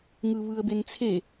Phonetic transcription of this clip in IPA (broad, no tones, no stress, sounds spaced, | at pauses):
ŋ ɯ β ɯ ə̯ b e n t͡sʰ e